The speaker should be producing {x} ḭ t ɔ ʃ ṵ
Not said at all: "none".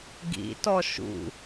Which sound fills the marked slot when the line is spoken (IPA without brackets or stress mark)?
ɡ